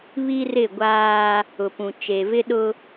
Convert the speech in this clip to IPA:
β i˦ r ɪ˦˨ ɡʷ aː˦ | ʊ˨ p ũ˨ t͡ʃ e˨ v ɪ˦ ɗ ʊ˦

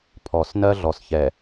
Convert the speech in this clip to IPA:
pʰ ɔ˨ s n ɜ˦ ɮ ɔ˨ s ç ɛ˨

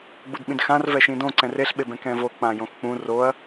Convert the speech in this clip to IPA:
ɡ͡b u d ɓ ĩ d x ã r v ɛ ʃ ĩ d õ ǀ ɛ̃ r e ɬ ɓ e b ɛ̃ k ɛ̃ v o k͡p ã j õ x k͡p ũ r o ɐ̯

